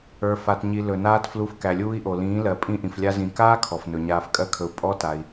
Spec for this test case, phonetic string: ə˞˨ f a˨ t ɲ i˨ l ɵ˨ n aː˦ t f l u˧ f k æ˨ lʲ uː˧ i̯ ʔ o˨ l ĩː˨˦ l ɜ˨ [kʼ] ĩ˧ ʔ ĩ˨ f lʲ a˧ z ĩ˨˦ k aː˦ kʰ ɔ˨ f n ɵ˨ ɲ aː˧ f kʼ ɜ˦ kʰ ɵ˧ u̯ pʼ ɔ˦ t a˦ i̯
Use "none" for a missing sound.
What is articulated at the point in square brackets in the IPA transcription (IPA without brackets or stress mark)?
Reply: pʼ